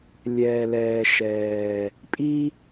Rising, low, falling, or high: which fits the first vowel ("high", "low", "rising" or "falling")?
low